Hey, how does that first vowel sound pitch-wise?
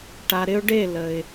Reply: low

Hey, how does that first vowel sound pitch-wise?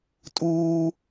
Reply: high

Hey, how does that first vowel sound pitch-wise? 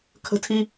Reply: high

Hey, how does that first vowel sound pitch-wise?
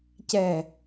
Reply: low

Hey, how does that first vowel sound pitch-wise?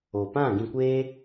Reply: low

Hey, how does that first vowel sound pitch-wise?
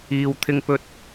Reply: low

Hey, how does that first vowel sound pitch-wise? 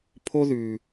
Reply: high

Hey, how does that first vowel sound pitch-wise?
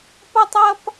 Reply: high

